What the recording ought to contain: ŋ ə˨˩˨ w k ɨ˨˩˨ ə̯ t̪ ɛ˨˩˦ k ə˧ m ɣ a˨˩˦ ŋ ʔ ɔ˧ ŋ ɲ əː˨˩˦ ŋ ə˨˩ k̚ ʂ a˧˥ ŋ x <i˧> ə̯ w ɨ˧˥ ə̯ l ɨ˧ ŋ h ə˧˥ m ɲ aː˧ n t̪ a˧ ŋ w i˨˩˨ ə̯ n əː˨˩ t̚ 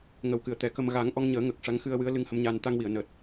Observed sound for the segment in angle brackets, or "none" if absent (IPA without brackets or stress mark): ɨ˧